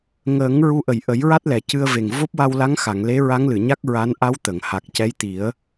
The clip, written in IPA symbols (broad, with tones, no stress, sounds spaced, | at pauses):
ŋ əː˨˩˦ ŋ ɹ u˧ ʔ ə˨˩ j ʔ ə˨˩˦ j ɹ a˦˥ t̚ l ɛ˨˩˨ c ɨ˧ ə̯ v e˨˩ ŋ v o˦˥ p̚ w a˧ w l a˧˥ ŋ x a˨˩˨ ŋ l e˧˥ ɹ a˧˥ ŋ l ɨ˨˩˨ ɲ a˦˥ k̚ ɹ a˧˥ n ʔ a˧˥ w t̪ ə˨˩˨ ŋ h a˨˩ k̚ c ɛ˧˥ j t̪ i˨˩˦ ə̯